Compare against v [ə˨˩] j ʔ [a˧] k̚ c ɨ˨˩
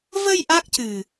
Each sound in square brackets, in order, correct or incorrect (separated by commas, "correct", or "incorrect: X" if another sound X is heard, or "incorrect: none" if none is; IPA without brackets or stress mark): incorrect: ə˧, incorrect: a˦˥